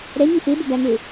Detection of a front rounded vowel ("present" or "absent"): absent